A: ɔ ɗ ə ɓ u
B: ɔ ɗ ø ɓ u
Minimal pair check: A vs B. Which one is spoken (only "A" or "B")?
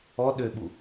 B